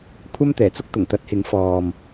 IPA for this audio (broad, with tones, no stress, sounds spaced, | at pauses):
kʷʰ ɐ˥ m t̪ ɛː˨˩ t͡s ʊ˥ k̚ t̪ ʊ˨˩ ŋ t̪ ɐ˨˥ t̚ h ɪ˨˥ ŋ f ɔː˨ m